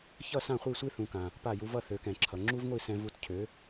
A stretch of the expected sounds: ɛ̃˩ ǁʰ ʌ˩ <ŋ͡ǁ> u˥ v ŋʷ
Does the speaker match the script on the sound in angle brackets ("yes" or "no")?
yes